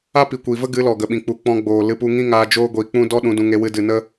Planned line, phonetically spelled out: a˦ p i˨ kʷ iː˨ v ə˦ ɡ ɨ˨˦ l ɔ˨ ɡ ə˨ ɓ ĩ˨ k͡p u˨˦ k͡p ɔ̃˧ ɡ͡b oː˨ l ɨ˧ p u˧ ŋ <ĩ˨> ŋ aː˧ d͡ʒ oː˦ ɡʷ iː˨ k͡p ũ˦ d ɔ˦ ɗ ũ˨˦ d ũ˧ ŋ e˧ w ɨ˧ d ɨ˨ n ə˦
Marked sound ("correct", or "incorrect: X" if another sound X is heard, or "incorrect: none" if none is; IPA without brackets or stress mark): incorrect: ĩ˦